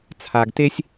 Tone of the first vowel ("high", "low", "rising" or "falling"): low